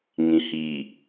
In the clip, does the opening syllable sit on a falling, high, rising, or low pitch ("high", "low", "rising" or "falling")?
low